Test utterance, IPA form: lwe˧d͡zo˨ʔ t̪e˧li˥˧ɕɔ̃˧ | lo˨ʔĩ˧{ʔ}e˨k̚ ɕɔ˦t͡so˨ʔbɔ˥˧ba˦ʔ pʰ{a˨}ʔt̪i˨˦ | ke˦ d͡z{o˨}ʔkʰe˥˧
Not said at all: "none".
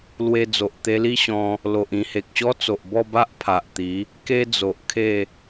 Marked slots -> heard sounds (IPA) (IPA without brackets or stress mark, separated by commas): h, a˨, o˨